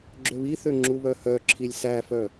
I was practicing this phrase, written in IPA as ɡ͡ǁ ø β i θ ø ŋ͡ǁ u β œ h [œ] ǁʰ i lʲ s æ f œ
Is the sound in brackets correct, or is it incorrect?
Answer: correct